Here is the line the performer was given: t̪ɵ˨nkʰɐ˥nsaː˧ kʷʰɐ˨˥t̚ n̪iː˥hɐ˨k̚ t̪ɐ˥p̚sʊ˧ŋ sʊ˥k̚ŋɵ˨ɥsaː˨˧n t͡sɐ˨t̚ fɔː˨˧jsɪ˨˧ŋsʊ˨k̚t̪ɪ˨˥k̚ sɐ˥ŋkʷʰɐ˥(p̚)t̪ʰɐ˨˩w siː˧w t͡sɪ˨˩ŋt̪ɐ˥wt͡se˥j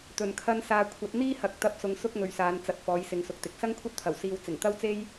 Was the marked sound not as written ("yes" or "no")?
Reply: yes